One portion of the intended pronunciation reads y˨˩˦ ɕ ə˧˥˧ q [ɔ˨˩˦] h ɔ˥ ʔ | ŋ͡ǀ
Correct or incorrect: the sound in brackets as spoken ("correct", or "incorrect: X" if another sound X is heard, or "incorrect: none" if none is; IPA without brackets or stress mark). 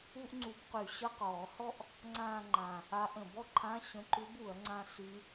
incorrect: ɔː˨˩˦